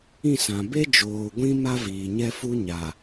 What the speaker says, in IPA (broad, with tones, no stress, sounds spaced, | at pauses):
ĩ˦˨ s ã˨ b e˦ d͡ʒ oː˨ ɡʷ ĩ˦ m a˦ v iː˨ ɲ ɛ˦ f u˦ ɲ a˨